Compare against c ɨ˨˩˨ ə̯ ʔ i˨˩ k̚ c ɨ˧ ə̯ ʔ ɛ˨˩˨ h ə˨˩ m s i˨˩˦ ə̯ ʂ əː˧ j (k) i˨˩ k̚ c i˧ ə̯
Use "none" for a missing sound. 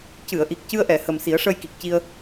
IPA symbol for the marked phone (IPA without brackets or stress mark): k